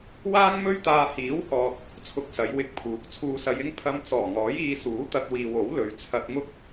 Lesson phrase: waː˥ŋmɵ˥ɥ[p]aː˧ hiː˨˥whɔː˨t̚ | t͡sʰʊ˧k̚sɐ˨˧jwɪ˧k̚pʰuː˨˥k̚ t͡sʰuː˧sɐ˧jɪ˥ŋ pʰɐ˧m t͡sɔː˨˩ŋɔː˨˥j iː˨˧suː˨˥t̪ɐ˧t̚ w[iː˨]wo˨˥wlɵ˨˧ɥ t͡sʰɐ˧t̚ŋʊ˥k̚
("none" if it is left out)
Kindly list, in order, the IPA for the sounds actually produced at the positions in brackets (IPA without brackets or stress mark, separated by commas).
t̪, iː˨